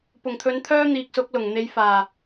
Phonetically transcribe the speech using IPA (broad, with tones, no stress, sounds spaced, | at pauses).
p ʊ˨˩ ŋ t̪ʰ ɵ˨˥ n t̪ʰ œː˥ n̪ iː˨ k̚ s ʊ˨˥ k̚ l ʊ˨˩ ŋ n̪ e˨˧ j f aː˨˩